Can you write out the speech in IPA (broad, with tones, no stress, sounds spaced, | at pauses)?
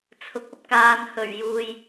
t͡sʰ ʊ˨ k̚ ɐ˥ p̚ k aː˨ n h ɵ˨˩ ɥ j uː˨ j